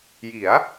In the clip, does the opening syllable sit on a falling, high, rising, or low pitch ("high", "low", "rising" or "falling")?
rising